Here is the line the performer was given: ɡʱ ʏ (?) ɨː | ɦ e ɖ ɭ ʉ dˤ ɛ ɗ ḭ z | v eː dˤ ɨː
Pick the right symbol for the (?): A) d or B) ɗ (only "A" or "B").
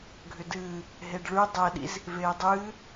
A